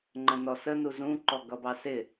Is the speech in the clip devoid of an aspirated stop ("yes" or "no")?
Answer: yes